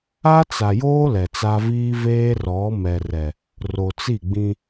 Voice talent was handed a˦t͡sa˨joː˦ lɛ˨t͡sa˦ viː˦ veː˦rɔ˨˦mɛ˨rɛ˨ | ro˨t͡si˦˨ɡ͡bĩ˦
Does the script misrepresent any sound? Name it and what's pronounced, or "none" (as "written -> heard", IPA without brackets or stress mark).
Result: none